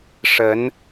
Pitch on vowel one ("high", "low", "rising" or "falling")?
rising